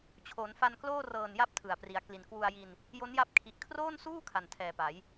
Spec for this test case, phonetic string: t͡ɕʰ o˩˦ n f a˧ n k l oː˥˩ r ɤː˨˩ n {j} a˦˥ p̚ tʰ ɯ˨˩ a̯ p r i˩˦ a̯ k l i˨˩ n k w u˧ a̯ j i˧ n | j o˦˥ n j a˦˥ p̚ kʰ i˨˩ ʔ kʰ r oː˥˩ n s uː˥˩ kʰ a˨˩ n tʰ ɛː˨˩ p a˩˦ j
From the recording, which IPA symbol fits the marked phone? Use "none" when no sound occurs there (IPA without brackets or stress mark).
j